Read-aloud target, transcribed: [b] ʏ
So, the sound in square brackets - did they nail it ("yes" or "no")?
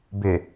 yes